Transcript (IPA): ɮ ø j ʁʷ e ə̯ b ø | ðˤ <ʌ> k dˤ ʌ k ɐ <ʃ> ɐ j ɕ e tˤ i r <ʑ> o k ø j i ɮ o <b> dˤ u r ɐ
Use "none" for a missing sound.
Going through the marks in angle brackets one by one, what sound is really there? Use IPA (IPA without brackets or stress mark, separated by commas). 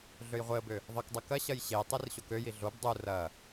ʌ, ɕ, ɕ, b